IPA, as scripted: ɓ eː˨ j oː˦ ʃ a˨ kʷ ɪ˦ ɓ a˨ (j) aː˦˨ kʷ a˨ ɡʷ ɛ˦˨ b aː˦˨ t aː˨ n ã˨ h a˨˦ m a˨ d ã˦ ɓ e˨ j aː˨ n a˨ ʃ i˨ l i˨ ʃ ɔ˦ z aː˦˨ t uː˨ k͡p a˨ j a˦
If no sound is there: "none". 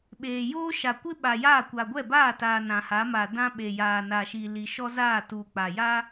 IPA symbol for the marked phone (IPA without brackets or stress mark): j